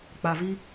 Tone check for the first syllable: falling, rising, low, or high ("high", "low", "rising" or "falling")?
low